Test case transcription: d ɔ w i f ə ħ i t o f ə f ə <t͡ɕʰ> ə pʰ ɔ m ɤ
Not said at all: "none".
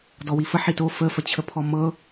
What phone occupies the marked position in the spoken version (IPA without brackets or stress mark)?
t͡ɕʰ